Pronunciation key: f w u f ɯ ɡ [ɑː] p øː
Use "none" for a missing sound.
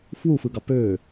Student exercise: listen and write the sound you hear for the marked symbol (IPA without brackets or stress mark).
ɑ